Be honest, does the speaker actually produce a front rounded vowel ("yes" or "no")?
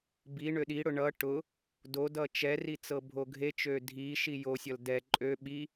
yes